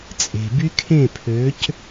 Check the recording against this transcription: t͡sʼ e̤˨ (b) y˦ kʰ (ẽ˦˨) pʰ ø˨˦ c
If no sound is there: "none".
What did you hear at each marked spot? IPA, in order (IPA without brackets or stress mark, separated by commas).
b, ẽ˦˨